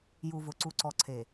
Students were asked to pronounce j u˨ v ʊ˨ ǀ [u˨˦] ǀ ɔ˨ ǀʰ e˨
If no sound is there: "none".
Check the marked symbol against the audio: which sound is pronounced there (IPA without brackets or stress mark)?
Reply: u˨